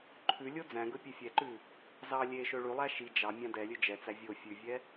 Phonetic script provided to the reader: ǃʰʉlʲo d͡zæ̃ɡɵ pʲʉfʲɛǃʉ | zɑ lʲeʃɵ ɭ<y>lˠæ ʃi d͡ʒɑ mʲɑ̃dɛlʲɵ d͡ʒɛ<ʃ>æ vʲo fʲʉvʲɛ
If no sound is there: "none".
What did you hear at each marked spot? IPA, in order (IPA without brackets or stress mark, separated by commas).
y, t͡s